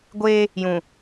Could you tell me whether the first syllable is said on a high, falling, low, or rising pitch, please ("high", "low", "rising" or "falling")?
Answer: high